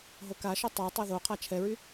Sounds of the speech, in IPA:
ɦ o k a ʃ œ tˤ œ tˤ ɛ ð o qʰ a t͡ʃʰ ɛ ɹ y

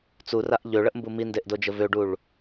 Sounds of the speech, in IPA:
t͡s u r a ʔ ʎ ø ɭ ə ʔ m b u m i n d e ʔ d o d͡ʒ ə v ø ɖ u ɭ

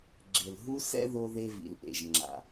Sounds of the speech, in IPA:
ɡ͡ǁ e˨ l ɦ u˦ s ɛ̰˦ ð o˦ ð e˦ v ḭ˨ l ʔ ḛ˨ ʒ ŋ͡ǁ a̰˨

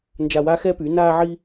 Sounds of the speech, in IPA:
n d͡ʒ a˧ w a˦ x ɛː˦ p y˨˦ n aː˧ ʕ iː˧

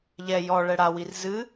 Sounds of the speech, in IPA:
ʎ ɛ j ɔ ɭ ɛ ɽ a w i r z ɨ

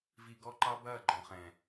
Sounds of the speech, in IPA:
v i˨ ɡ ɔ˦ ǃ ɑ˦ b ɐː˦˨ ɡ͡ǃ ɔ̃˨ χ ɛ̃˨

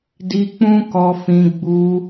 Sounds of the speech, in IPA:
d i˧ k͡p ũ˦ k ɔ˧ f ĩ˧ ɡ͡b u˧

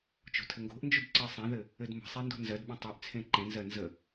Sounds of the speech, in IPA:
t͡ʃ o̤ tʰ ɘ ŋ ɡ o̤ ʔ n d͡ʒ y d ǀ ɜ sˤ ẽ ð ɘ | ɘ d m ə̤ sˤ e n d o̤ n z ɜ d ɓ ẽ tˤ ø ʔ t͡sʰ ẽ ǃ ẽ n z ɜ n z ə

